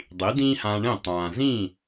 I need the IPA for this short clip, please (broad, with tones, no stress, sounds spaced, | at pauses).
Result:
dˤ i˩˥ d ĩː˥ h ãː˧ ɳ ẽ˥˩ tˤ ãː˩ z ĩː˥˩